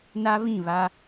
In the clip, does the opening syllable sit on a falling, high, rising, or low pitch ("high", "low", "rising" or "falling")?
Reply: high